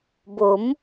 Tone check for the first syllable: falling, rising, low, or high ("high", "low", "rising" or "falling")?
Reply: rising